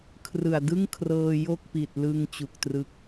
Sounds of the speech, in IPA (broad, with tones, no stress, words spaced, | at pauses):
kʰrɯ˨˩a̯ dɯ˥˩ŋkʰrɤː˧ jo˥˩k̚pi˨˩t̚lɯ˧ŋ t͡ɕu˨˩k̚trɯ˦˥k̚